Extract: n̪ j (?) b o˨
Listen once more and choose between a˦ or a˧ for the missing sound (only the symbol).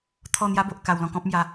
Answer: a˦